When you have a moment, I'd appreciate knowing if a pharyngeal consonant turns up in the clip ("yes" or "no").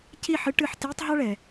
yes